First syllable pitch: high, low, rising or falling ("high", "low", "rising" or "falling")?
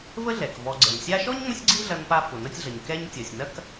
high